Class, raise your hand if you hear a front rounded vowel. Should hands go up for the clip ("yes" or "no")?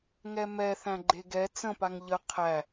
no